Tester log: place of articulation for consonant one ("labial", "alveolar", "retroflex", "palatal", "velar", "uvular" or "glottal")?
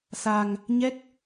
alveolar